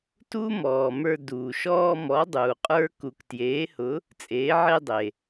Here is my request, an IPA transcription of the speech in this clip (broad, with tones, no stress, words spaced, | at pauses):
tu˥mɔː˩mə˞˧ duː˩ʃɔː˧mɔ˩˧ dˤuː˩qʼə˞˧ ku˩ktjeː˩˧hʊ˩˧ | t͡sʼeː˩˧ʕe˧ dˤe˩